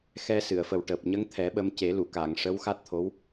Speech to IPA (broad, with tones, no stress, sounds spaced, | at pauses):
x ɛ˧ s ɨ˨˩˨ ə̯ f ə˨˩ w ʈ əː˨˩ p̚ ɲ ə˧˥ ŋ t̪ʰ ɛ˨˩˦ ɓ ə˧ m c e˨˩˦ l u˨˩˨ k a˨˩˨ ŋ ʂ ə˧˥ w x a˦˥ t̚ t̪ʰ o˧˥ w